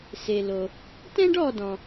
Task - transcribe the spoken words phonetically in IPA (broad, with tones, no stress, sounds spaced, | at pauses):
s e˩ l o˩ | t ɛ̃˥ ɖ ɔ˦˨ d ɔ̃˩